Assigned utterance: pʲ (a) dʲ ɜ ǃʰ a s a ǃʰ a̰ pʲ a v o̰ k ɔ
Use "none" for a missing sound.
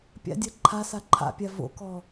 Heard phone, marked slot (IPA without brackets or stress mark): a̰